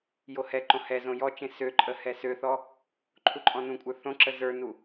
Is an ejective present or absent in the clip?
present